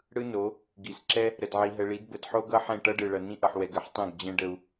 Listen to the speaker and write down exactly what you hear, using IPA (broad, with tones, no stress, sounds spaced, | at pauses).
ɽ ɯ˦ n o˨˦ | ɡ i˨ s ǁ ɛ˦ | ɾ ə˨ d ʕ i˨ ɦ ə˨ ɭ i˨˦ d b ə˨ d ħ o˦ ɡ ʌ˦ ħ ɛ̃˦˨ ʈ ʌ˦ ɖ ɯ˨ ɭ ʌ˨ n ĩ˦ ʔ ʌ˨ ħ w ɛ˨ ɡ ə˨ ħ tˤ ɛ̃˦˨ ɡ d͡ʑ ɛ̃˦ ɖ ə˦ u̯